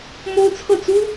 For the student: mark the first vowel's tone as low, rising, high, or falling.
high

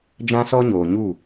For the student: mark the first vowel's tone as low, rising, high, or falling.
high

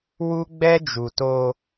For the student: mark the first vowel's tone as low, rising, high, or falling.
high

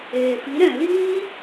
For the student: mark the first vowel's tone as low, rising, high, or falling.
low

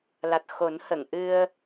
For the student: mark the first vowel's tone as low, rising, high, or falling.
low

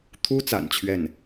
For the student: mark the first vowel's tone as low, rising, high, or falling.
high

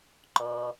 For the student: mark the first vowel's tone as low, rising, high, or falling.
low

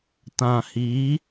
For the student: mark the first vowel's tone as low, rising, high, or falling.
low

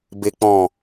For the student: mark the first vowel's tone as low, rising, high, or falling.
low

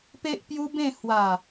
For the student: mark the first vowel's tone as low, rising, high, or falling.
high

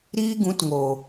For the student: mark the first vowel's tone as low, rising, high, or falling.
high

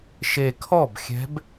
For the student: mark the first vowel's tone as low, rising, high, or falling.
low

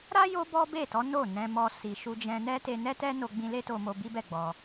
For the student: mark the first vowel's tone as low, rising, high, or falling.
high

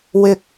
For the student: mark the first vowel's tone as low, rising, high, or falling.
low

